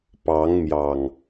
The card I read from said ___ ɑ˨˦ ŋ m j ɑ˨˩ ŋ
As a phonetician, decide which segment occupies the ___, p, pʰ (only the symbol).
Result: p